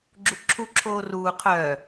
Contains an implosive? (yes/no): no